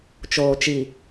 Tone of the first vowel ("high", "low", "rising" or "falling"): low